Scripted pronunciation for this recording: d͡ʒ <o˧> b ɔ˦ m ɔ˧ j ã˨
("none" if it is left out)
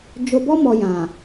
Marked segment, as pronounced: o˧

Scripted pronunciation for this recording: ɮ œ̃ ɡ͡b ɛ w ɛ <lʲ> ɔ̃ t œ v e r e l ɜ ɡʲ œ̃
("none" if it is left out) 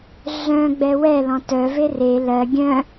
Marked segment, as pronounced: l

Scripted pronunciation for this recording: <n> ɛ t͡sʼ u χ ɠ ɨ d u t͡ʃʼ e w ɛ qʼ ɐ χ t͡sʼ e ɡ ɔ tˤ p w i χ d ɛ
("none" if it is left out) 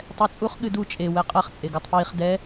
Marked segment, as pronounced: tˤ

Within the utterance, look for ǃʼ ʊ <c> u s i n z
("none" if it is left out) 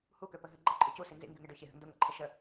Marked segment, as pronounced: c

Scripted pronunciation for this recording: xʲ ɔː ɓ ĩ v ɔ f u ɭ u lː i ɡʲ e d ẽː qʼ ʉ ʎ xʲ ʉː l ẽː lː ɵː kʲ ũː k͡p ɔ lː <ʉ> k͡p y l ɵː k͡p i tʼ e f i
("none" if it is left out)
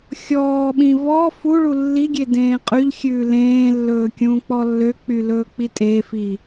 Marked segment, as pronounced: ø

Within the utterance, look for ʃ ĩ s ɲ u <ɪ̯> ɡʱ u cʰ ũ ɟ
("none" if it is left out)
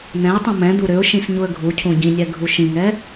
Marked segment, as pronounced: ə̯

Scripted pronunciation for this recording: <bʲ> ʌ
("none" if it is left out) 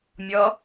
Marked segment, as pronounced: mʲ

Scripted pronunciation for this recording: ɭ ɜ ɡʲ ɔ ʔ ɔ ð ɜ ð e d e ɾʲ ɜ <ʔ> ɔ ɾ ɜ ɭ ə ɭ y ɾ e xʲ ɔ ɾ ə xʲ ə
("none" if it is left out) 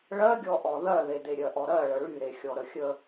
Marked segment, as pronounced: ʔ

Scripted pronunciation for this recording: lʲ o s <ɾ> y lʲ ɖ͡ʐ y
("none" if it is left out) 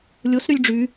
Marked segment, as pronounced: ɾ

